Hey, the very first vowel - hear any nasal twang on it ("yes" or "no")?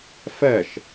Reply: no